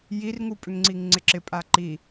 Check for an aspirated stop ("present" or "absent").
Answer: absent